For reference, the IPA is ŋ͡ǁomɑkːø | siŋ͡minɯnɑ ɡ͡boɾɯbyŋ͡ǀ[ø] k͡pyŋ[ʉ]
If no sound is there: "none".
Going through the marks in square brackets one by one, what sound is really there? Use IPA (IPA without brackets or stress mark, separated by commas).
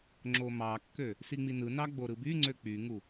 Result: ø, u